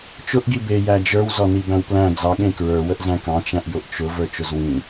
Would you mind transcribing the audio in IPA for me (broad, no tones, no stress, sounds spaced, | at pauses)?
t͡ʃ ʊ ʔ ɡ i b e j æ d͡ʒ ə˞ w z ɔ n i b æ̃ w p l æ̃ d͡z ɑ ɠ ẽ k ɹ ə˞ w ə ʔ z æ̃ k ɑ̃ t͡ʃ æ̃ ʔ j ʊ ʔ t͡ʃ ʊ v ə˞ t͡ʃ ʊ z w ĩ